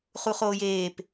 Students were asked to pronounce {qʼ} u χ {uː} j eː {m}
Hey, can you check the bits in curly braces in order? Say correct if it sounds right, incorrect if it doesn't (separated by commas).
incorrect, incorrect, incorrect